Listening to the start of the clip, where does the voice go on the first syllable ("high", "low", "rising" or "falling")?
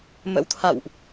rising